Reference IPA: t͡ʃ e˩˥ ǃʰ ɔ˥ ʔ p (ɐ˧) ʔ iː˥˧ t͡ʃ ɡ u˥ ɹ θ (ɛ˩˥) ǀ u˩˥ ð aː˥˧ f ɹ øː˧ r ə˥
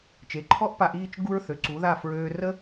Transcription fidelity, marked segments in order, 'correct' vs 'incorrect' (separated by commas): incorrect, incorrect